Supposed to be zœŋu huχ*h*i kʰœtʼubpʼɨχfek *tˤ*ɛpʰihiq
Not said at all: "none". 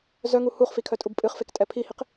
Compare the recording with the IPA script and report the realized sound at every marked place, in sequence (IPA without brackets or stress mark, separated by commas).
f, tʼ